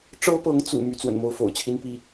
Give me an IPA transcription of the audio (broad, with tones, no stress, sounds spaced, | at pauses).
ʈ͡ʂ ɤ˥ p ɤ˧˥ ŋ t͡s ṵ˨˩ m y˥ t͡s w ə̰˨˩ n m o˥˩ ʊ̯ f o̰˨˩ ʊ̯ t͡ɕʰ i˥ n p i˥